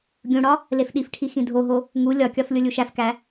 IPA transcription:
ɡʲ ũ ɽ ɒ | l e f ɗ i f ʈʰ i x ĩ dʱ o ɦ o | ŋ u lʲ ɒ kʲ ɒ f lʲ o lʲ u ʃ æ f k æ

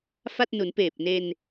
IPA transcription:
f a˥˩ t̚ n u˩˦ n p eː˨˩ p̚ n e˧ n

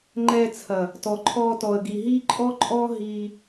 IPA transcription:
ŋ͡ǃ ɛː˧ t͡sʰ ɐ˨ | t ɔ˨ ǃʰ ɔː˧ t ɔ˨ ə̯ ɡ i˨ ɦ iː˦ ǃʼ ɔ˦ ǃʼ ɔː˦ ɦ iː˧

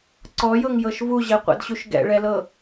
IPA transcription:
ǀ ɔ j ɤ ŋ j ɤ ʃ v u ʑ ɛ qʷ ɛ̰ d ɕ u ʃ ɡ ɛ̰ ɭ ɛ l ɤ

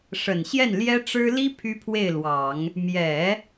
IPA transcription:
ʂ ə˨˩ n ɕ j ɛ˥˩ n l j ɛ˥ ʈ͡ʂ ɻ̩˥ l i˥ pʰ y˥ pʰ w e˥˩ ɪ̯ l w ɑ˨˩˦ ŋ | m j ɛ˨˩˦

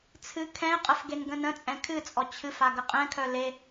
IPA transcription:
t͡sʰ ɨ kʰ ɛ̃ ɪ̯ qʼ ə f ɡ e n ɡ ə̃ n ə̃ t͡sʼ ɛ̃ kʰ ɨ t͡sʼ ɔ t͡ɕʰ ɨ f a ɡ ə qʼ ɛ̃ kʰ œ l e

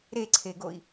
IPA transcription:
ɾ e ǀʰ e ɡ o i̯

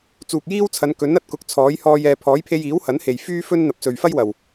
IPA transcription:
t͡s uː˨ k̚ j iː˥ w t͡sʰ ɐ˨˧ n k ɵ˨˥ n ɐ˨ t̚ k ʊ˨˥ k̚ t͡sʰ ɔː˨˥ j h ɔː˧ j ɛː˨ pʰ ɔː˨˥ j pʰ e˧ j iː˨˥ w h ɐ˨˥ n h e˨ j f yː˥ f ɵ˥ n n̪ ɐ˨ p̚ s ɵ˨ ɥ f ɐ˥ j w ɐ˨ w

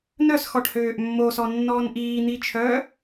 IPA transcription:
n œ s x ɔ ʈ h øː ʔ mː o s ɔ nː ɔː n ʔ iː n̪ i t͡ʃʰ œː

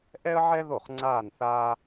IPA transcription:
ʔ ɛ˥ ə̯ ʕ ɛ˥ ð o˥˩ χ ŋ͡ǀ aː˥˧ n θ aː˥

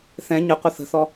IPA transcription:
θ ɛ̃ ɲ ə qʷ ə θ ə̤ θ ɔ

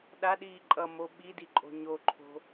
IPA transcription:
ɗ a ɗ iː ǃʼ ʌ m o ɓ i d i ǃʼ o̤ ɲ o ǃʰ o̤

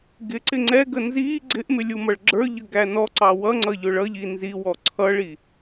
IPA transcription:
ɡ ɪ ǀ ɪ ŋ͡ǀ ɛ ɡ ə n z iː ɡ͡ǀ ɪ ʔ m ɪ lʲ u m ʌ ɭ ɡ͡ǁ ə˞ ʎ ə ɡ æ n ɔ ǀ ɑ w ʌ ŋ͡ǀ ʌ ʎ ʊ ɭ ʌ ʎ i n z i w ɔ ǀʰ ʌ ɭ i

